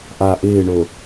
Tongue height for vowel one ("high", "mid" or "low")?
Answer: low